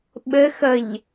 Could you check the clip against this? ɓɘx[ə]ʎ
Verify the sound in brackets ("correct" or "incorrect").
correct